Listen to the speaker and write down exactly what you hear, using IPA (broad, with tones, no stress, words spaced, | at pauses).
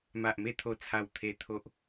ma˨ʔme˧ t̪ʰo˧t͡sʰa˧wt̪ʰe˧ t̪ʰo˦ʔ